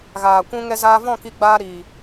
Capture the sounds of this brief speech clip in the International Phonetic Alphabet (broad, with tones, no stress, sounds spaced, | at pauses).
ɣ aː˨ kʷ ũ˧ ŋ ɛ˧ z aː˧ v ɔ̃˦˨ k i˧ ɡ͡b aː˧ ɾ iː˨